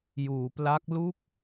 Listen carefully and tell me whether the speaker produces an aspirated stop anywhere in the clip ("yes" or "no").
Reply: no